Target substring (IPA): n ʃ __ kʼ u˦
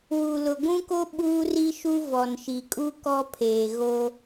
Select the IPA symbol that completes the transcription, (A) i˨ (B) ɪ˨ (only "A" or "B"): A